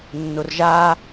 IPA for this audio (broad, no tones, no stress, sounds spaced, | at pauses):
nː ʊ r ʒ aː